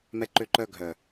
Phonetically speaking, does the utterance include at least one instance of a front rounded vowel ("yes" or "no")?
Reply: yes